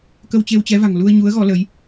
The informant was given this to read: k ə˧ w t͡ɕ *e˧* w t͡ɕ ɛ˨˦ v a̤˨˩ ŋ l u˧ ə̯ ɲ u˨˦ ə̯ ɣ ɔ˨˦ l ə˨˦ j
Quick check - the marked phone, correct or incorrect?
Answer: correct